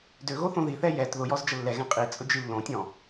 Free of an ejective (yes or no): no